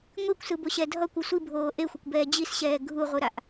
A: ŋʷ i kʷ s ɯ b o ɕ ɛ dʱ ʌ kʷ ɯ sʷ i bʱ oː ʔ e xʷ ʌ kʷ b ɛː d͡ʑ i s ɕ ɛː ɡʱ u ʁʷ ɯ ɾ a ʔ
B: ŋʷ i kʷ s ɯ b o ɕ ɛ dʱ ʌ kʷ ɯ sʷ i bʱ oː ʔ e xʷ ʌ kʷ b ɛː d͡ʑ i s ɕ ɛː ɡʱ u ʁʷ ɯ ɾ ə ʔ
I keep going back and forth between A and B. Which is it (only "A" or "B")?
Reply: A